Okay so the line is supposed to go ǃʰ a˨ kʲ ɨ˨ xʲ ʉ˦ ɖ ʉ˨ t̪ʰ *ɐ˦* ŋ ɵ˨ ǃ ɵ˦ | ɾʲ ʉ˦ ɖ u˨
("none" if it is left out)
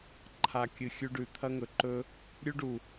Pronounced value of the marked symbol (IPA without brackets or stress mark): ɐ˦